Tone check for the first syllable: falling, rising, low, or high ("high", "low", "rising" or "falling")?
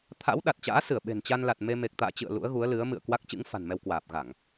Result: rising